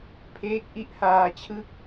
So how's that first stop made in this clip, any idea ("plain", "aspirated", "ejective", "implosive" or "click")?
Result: aspirated